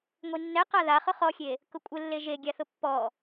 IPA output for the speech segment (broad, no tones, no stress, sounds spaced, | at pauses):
ŋʷ i nː ɛ q a ð a χ ʊ χ ɔ xʲ e | k ʊ kʷʼ ɪ lː e ʒ e ɡʲ a θ ʊ pː ɔ